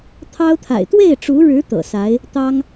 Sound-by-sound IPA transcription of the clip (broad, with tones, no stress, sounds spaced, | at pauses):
t̪ʰ ɑ˥ ʊ̯ t̪ʰ a̰˨˩ ɪ̯ t̪ w e˥˩ ɪ̯ ʈ͡ʂ u˧˥ ɻ ɻ̩˧˥ t̪ ɤ̰˨˩ s a˧˥ ɪ̯ | t̪ ɑ˥ ŋ